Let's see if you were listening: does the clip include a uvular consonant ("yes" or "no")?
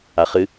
yes